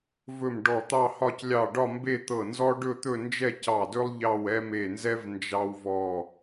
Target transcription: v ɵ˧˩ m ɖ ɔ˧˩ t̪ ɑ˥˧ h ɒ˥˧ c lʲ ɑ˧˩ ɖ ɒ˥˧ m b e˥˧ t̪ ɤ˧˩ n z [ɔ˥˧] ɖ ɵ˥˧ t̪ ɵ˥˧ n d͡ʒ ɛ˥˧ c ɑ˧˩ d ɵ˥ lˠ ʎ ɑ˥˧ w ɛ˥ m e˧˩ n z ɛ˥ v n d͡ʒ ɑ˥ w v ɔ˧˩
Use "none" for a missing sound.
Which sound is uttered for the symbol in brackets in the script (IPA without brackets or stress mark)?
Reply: ɔ˥